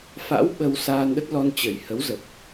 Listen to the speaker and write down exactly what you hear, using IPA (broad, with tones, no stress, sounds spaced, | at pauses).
f a̰˧˥ w ɓ ə˧ w s aː˧ n ɗ ə˦˥ t̚ l ɔ˧ n t͡ɕ ə˨˩ j h ə˨˦ w z ə˨˩ p̚